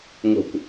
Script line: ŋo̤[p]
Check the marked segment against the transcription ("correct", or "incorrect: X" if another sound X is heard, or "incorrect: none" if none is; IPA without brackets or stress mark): incorrect: kʷ